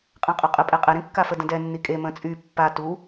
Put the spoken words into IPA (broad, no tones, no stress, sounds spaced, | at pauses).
qʼ ã qʼ œ qʼ ə pʼ ɛ qʼ ɛ ɾ ĩ kː a f ə d ə̃ d ɛ nː i kʼ e m ə̃ t͡sʼ y pː a t u